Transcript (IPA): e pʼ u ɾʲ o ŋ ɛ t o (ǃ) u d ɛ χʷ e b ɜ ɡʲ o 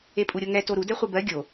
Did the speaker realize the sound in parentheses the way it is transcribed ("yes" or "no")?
no